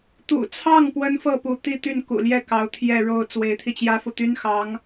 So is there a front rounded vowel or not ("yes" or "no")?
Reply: yes